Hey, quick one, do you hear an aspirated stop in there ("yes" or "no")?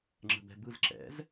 no